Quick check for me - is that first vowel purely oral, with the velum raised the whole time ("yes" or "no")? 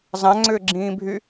no